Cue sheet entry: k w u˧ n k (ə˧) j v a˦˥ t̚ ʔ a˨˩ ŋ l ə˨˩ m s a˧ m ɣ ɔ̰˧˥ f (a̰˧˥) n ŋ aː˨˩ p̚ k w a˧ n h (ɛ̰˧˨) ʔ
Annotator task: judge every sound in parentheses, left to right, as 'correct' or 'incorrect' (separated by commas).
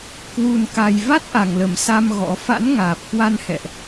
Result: incorrect, correct, correct